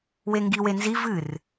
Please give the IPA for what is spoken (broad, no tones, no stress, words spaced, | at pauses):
weŋɡi wenzi vɨr